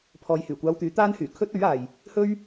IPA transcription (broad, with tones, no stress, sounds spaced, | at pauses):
pʰ ɔː˨ j h yː˨˩ kʷ aː˧ w t̪ yː˨˥ t̪ aː˥ n h yː˨˩ kʰ ɵ˥ t̚ ɵ˨˥ ɥ aː˨ j | h ɵ˥ ɥ